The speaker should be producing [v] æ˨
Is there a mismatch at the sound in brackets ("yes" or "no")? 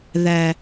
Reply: yes